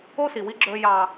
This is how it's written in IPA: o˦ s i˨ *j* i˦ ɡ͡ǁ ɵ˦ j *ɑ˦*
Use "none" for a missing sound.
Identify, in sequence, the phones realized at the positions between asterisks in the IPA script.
w, ɑ˦

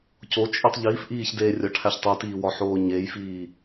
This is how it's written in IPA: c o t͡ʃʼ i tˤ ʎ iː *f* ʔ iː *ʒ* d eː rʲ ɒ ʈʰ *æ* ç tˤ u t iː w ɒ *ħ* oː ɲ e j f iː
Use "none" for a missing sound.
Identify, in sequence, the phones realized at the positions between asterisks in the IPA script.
f, ç, æ, ħ

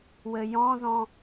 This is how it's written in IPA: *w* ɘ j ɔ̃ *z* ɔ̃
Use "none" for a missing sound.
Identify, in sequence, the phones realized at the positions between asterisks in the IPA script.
w, z

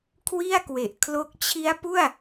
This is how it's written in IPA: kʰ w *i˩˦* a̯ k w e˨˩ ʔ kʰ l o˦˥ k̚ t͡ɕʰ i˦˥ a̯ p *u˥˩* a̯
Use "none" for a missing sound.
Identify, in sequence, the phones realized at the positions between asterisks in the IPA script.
i˥˩, u˥˩

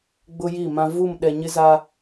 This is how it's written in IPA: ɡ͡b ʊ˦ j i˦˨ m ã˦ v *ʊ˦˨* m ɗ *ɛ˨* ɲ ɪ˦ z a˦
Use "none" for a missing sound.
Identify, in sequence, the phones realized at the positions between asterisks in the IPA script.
u˦˨, ɛ˨

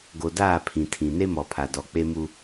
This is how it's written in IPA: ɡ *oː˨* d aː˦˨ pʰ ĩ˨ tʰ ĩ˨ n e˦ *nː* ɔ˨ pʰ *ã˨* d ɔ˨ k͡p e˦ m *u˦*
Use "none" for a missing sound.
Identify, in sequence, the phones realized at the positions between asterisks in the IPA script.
o˨, m, a˨, u˦

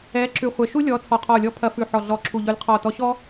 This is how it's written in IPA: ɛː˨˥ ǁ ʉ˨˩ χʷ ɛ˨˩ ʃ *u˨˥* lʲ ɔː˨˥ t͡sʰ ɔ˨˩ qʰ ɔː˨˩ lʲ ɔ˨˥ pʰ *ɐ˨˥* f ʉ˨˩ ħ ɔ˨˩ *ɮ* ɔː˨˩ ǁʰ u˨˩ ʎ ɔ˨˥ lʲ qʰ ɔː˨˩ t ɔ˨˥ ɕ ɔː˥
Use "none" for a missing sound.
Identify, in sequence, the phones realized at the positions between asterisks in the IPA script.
u˥, ɐ˨˥, ɮ

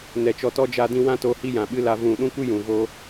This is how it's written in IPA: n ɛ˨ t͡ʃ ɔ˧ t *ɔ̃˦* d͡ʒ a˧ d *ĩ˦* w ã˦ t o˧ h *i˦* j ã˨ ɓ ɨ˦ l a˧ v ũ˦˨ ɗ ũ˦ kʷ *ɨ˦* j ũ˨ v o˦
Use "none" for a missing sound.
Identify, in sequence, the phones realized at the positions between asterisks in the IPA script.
ɔ˦, ĩ˧, i˦, ɨ˦

